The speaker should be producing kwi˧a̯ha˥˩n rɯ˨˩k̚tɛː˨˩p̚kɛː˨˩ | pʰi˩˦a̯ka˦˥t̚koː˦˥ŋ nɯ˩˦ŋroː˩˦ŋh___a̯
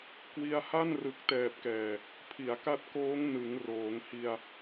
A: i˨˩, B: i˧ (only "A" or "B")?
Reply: B